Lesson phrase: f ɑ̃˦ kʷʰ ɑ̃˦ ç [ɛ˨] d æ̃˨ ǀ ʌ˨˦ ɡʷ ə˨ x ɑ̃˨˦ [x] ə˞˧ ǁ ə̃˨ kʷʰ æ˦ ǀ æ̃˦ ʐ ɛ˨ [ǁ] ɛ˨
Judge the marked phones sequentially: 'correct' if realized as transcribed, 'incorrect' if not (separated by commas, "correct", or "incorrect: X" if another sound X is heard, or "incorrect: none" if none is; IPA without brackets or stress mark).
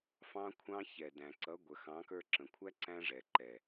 correct, incorrect: k, incorrect: ǃ